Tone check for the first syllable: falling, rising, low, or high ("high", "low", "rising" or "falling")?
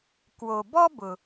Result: low